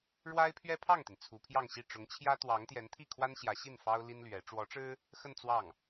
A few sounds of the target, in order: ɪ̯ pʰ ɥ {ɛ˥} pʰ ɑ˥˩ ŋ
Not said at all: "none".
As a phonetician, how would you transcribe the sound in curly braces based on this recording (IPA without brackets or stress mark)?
ɛ˥